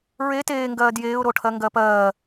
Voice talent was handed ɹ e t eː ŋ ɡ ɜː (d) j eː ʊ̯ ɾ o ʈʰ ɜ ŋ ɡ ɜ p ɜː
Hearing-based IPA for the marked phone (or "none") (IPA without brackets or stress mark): d